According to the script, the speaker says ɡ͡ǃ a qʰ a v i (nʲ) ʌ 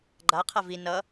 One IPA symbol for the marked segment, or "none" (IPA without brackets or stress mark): n